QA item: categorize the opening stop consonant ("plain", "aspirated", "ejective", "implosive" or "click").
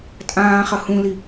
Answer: ejective